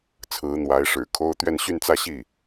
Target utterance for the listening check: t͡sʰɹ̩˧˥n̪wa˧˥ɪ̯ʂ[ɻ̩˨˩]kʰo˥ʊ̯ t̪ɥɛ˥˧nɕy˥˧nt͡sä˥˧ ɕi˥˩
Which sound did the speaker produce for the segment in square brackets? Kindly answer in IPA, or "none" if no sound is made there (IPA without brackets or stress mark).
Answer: ɻ̩˨˩